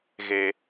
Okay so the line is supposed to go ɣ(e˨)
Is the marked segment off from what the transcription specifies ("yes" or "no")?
no